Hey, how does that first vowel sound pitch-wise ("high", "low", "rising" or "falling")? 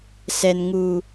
high